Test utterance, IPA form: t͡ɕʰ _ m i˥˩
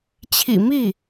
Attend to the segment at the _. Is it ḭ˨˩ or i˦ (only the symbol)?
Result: ḭ˨˩